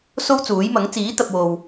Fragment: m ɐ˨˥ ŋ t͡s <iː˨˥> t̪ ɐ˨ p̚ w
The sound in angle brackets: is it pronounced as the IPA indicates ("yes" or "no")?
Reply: yes